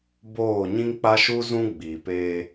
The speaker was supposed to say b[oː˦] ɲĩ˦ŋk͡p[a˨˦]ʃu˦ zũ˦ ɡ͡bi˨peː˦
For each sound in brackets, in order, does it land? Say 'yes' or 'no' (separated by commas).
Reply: no, no